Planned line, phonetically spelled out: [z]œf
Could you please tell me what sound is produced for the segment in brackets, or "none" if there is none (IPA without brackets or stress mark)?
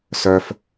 s